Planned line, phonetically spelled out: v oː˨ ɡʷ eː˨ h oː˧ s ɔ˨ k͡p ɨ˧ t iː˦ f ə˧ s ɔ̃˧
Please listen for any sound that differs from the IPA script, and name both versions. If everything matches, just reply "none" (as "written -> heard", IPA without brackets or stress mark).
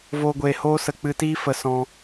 ɔ˨ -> ə˨